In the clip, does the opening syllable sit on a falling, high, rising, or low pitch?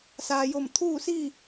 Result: low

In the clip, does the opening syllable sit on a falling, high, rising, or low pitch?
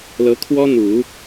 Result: rising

